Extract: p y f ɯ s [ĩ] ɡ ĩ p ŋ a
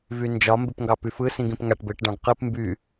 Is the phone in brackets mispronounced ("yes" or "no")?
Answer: no